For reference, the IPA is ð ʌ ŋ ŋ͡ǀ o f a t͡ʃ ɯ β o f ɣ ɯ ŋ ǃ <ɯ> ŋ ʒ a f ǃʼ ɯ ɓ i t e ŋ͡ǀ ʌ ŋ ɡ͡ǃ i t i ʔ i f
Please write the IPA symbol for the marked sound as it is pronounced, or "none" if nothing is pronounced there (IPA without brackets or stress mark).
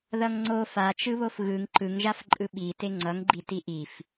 ɯ